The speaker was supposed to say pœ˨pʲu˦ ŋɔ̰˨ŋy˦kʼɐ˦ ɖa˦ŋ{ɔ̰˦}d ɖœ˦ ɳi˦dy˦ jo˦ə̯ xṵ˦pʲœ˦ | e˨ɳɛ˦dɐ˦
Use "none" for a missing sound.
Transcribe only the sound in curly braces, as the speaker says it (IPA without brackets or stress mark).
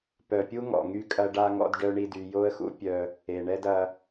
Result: ɔ̰˦